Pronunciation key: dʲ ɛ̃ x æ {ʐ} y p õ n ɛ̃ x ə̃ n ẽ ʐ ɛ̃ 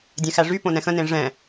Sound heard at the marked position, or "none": ʐ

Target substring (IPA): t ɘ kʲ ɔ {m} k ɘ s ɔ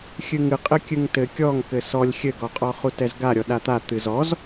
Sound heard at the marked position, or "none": ŋ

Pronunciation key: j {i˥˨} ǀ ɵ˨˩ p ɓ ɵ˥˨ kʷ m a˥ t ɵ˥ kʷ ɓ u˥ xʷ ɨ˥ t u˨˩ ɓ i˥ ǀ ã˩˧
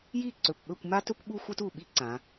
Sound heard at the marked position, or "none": i˥˨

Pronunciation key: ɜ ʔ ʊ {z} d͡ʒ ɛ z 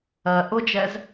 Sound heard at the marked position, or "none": none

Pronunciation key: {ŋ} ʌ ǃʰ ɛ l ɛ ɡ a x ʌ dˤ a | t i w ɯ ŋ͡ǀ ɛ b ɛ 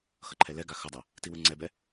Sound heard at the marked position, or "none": x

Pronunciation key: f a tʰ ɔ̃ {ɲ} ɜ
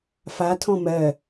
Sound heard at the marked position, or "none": m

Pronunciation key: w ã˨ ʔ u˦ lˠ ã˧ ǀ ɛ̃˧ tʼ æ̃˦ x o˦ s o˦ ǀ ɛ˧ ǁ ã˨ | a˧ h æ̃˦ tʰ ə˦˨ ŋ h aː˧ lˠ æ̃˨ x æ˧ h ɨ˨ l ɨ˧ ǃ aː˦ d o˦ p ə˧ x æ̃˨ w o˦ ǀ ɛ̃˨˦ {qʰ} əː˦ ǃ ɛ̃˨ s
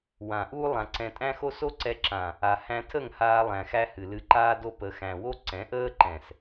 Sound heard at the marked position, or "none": ʔ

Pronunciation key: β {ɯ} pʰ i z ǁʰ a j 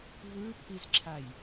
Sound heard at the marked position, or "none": ɯ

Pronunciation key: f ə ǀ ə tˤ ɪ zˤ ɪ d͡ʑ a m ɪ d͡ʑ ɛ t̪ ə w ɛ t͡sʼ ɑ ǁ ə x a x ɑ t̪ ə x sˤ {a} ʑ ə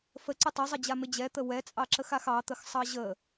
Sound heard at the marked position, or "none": ɑ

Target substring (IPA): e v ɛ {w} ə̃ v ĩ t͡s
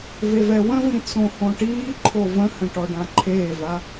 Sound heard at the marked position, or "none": w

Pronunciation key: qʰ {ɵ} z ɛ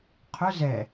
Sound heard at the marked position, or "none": ɵ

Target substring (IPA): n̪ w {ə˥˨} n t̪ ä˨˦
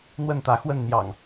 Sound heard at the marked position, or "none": ə˥˨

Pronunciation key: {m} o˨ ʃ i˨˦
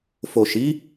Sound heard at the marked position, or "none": f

